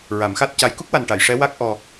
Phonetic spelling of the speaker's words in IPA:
ɹ a˨˩˦ m x a˦˥ t̚ c a˧˥ j k u˦˥ k̚ w a˨˩ n ʈ a˨˩˨ j ʂ ɛ˧˥ w a˦˥ k̚ ʔ ɔ˧

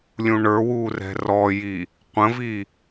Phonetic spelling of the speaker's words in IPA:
lʲ ũ ɳ ə˞ w uː r ɛ̤ r ɔ j i | qʷ ə̃ v i

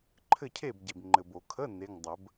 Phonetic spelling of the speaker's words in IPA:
ǃʰ ɘ˥˨ cʰ e˥˨ b ɟ e˨ b ŋ͡ǃ ɘ˨ b o˨˩˦ kʰ ə˧˥˧ n e˧˥˧ ŋ dˤ ə˨˩˦ b

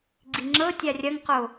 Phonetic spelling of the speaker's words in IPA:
ɡ͡ǀ i ŋ͡ǁ ɤ tʲ a rʲ ɐ ŋ q o

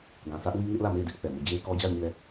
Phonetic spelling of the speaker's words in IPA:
ɡ ã˨ s ä˦ ʔ w i˦ ŋ ɪ˦ ʔ l ä˦˨ m e˦˨ ɪ̯ d ɪ˦ ʔ θ ɛ˨ m o˦˨ d͡ʑ e˦ ɪ̯ k ɔ˦ d͡ʑ a˦˨ ʊ̯ ɲ i˦˨ l ɛ˦˨

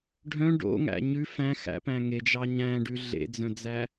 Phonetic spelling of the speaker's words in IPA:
ɖʱ œ̃ ɖ o̰ ŋ æ̰ ɲ ʉ f æ̃ x æ̰ p æ̃ ŋ e d͡ʒ ɑ ɲ æ̃ ɖ ʉ ɮ ḛ d͡z œ̃ d͡z æ

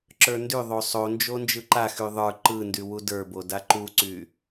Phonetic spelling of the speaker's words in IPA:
ǁ ə˞ n d y ðˤ o sˤ o n d͡ʒ o n d͡ʒ ɯ ǃ a x y ðˤ ə˞ ǃ ɯ n d y w u d ə˞ b o d a ǃ u ǀ y

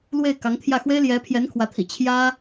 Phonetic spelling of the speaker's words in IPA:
l w e˥˩ ɪ̯ k ɑ˧˥ ŋ t̪ʰ j ä˥˩ x w e˥ ɪ̯ l j ɛ˧˥ pʰ j ɛ˧˥ n kʰ w ä˧˥ t̪ʰ ḭ˨˩ t͡ɕʰ j ä˥

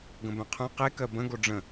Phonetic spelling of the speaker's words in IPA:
ɡ ə̃ b œ̃ qʰ œ̃ q e k ɜ b ə̃ ɡ o ɖ͡ʐ ə̃

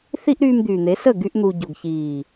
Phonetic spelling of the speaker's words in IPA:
θ i˧ ʔ ɾ yː˧ m d̪ yː˨ n̪ e˨˦ s ə˦˨ ɡ y˧ ʔ n̪ u˨ ɟ o˨ ɡ ç iː˨

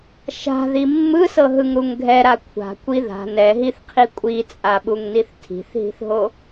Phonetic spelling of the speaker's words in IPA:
ʃ a̤ ð i mː ɯ s ɤ ɦ ɯ ŋ ɾ u ŋ ɡʱ ɛ ɾ a kʷʰ a̤ kʷ i ð a̤ n ɛ ɦ i θ qʰ i kʷʼ i t͡sʼ a ɓ u ŋ n i θ tʰ i̤ θ ɦ i̤ θ ɦ o

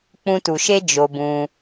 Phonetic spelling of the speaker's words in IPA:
k͡p ũ˧ t u˨ ʃ e˦ d͡ʒ o˧ b ũ˧

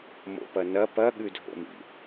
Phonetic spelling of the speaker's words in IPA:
m o̰ p ɐ n ɐ p ɐ ɠ ʉ dʱ o̰ m ḭ

